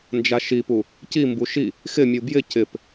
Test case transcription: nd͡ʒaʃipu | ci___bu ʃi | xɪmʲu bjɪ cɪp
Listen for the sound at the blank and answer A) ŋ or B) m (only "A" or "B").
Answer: B